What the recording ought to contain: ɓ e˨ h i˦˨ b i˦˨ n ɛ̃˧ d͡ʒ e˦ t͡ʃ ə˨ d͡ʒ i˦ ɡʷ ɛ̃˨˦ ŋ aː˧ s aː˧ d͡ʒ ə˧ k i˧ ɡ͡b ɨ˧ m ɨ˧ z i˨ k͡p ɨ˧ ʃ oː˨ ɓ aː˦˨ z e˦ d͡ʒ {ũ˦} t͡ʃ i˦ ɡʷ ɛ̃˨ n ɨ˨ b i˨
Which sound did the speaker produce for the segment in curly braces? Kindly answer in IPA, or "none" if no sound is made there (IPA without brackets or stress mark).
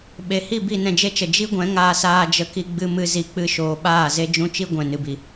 ũ˦